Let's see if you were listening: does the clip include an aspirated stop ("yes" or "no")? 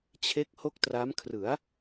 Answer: yes